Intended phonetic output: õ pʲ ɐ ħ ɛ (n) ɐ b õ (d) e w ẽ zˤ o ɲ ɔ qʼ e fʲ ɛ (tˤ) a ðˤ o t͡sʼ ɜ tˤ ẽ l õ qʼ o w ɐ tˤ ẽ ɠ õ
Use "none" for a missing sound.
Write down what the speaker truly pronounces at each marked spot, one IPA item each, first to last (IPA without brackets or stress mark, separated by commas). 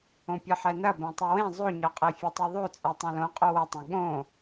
n, tˤ, tˤ